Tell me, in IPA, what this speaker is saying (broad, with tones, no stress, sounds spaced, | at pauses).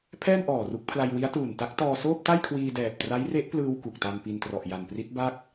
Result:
pʰ ɛː˥˩ n ʔ ɔː˨˩ r u˦˥ k̚ pʰ l a˧ j w i˦˥ a̯ t uː˨˩ n t a˦˥ k̚ t ɔː˧ s oː˥˩ p̚ t a˥˩ j kʰ w iː˧ d ɛː˨˩ p̚ t r a˦˥ j r e˦˥ ʔ p l ɯː˧ w k u˨˩ k̚ t a˧ n p i˧ n t r ɔ˨˩ ʔ j a˨˩ n p r i˦˥ t̚ b a˥˩ k̚